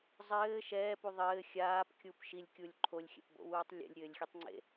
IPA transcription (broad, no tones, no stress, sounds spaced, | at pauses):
zˤ ɘː ʃ ɛː p u ðˤ ɘː xʲ aː p kʲ u p ʃ i lʲ kʲ u lʲ ǃʰ o lʲ xʲ ɛ̰ p b o̰ w uː tˤ lʲ ḛ lʲ ɾʲ ɘː lʲ xʲ e tˤ ŋ͡ǀ ḛ